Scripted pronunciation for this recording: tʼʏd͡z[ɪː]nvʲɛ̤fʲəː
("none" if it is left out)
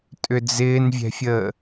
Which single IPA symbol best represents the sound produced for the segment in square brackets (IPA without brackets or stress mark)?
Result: ɪː